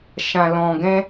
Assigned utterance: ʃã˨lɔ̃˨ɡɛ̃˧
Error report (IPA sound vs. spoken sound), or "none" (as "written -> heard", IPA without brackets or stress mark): none